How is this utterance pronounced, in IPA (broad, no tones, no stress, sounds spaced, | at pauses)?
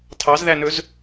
tʰ ɑ z ð æ n ɵ z